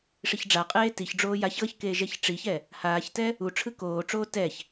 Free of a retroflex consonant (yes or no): no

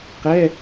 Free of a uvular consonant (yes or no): no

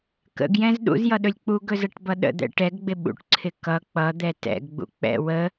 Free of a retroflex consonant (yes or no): no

